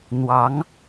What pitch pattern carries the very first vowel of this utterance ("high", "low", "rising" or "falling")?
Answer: rising